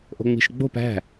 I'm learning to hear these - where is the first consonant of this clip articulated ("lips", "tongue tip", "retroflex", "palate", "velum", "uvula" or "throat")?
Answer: throat